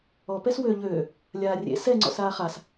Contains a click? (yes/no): yes